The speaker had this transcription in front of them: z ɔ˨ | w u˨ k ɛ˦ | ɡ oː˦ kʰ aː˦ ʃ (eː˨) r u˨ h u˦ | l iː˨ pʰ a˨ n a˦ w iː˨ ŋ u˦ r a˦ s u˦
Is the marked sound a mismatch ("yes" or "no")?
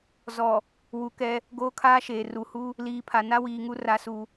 no